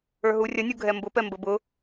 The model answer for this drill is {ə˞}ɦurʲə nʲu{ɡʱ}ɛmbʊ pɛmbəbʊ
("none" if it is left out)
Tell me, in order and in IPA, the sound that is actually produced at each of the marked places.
ə˞, ɡʱ

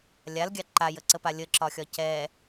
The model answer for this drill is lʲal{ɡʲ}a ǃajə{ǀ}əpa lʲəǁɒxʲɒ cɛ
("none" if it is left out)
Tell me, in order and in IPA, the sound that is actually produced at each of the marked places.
ɡʲ, ǀ

